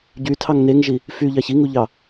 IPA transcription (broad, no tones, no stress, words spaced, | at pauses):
ɟytʰɑŋ neŋʒi | fyʎɑç iŋuʎɑ